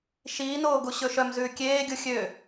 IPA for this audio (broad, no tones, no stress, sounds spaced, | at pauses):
ʃ iː n oː ɡ u ɕ ɵ ʃ œ m z ʉː kʲ eː ɡʲ u xʲ ø